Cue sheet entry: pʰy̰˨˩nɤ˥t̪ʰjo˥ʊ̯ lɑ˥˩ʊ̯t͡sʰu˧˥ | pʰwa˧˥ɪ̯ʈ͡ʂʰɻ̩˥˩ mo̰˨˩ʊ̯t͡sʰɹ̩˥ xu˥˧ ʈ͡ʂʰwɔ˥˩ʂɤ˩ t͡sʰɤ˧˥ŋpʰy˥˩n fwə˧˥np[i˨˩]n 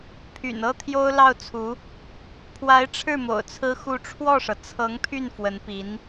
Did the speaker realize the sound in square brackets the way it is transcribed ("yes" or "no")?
no